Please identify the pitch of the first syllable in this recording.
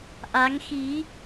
rising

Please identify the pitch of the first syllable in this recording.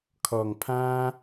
low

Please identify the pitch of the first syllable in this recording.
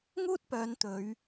high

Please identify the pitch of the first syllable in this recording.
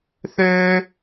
high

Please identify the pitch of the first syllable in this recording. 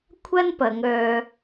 high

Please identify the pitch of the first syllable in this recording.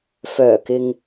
low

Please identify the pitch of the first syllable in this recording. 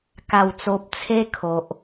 low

